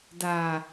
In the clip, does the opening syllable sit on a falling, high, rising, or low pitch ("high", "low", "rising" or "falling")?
low